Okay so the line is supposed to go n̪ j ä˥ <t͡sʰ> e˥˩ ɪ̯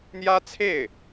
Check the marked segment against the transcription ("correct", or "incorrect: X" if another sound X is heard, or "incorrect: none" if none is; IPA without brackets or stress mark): correct